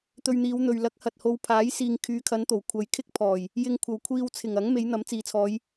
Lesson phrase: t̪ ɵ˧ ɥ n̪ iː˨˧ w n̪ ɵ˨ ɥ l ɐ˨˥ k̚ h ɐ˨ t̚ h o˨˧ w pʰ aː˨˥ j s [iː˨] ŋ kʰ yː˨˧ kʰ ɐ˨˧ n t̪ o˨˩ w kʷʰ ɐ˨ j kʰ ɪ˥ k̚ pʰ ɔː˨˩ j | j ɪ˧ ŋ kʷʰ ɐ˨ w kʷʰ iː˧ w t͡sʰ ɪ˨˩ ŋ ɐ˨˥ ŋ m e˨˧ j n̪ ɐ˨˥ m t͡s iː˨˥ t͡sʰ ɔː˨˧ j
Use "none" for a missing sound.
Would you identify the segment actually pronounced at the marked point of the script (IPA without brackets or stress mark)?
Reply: iː˨